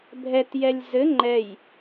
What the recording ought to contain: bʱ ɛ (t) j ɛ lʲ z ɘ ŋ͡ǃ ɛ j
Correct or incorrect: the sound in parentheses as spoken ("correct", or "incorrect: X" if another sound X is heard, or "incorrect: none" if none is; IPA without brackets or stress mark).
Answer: correct